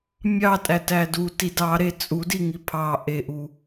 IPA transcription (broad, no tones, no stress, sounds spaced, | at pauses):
mʲ ɑ tʼ æ t æ d u t i d ɑ ɾ e t͡sʼ u d i ŋ i pʰ ɑ ʔ e ʔ u